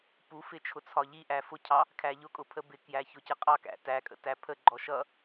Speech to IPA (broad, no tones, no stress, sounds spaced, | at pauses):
p u f ɪ t͡ʃʰ ʊ t͡sʰ ɒ ʎ i ʔ æ f ʊ cʰ ɑ | kʰ æ ʎ ʊ kʼ ʊ pʰ ə b ɪ k j æ ç ʊ c ə qʼ ɑ k æ̰ t æ kʼ ə̰ t æ pʰ ə ɡ͡ǃ ɔ ʃ ʌ